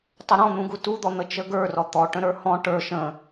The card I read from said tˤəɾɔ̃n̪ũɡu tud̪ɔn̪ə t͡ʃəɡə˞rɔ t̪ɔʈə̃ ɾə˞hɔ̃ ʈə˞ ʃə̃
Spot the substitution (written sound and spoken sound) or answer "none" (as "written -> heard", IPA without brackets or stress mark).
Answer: none